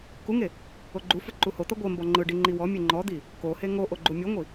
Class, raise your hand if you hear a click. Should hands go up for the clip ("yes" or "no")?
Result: yes